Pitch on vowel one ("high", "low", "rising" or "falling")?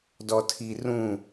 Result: low